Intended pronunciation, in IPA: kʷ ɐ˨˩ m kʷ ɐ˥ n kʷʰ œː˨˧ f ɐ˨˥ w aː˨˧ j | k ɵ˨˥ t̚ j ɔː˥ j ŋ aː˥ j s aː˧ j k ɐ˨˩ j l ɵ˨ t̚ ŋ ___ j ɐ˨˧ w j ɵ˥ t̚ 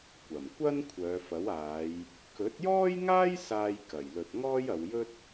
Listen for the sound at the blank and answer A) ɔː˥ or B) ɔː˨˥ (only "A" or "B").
A